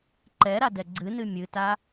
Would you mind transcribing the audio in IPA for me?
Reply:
ǃ ɛ ɾ a d ɛ ɡ͡ǀ ɨ n ɨ mʲ ɨ t a

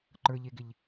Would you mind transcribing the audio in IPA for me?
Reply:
ǃ ə˞ ʎ e ɡ ɪ ʎ

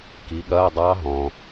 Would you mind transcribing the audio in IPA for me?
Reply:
k i˨˦ ɠ ɐː˧˥˧ dˤ ɑ˦˥ ɦ ɔ̃ː˩

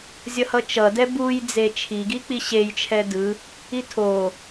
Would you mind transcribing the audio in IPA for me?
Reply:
zʲ ʌ h ʌ t͡ʃ ʌ d ɛ b u j d͡z e t͡ʃʰ i ɡ i k͡p i ɕ e j t͡ʃʰ ɛ d ɯ | i tʰ o

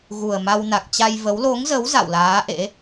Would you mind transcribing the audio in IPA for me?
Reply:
ɣ u˨˩ ə̯ m a˧ w n a˨˩ k̚ t͡ɕ a˧ j v ə˨˦ w l o˨˦ ŋ z ə˨˦ w z a̰˧˨ w l aː˨˦ ʔ ḛ˧˥

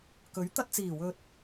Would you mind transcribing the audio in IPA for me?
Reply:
k ɵ˨˥ ɥ t̪ ɐ˧ t̚ t͡s iː˨˩ w ɵ˧ t̚

